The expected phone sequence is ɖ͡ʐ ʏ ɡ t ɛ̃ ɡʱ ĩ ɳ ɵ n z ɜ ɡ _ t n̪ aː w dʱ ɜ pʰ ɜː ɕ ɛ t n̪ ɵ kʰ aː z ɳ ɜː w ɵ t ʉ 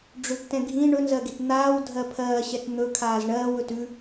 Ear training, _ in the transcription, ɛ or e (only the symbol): e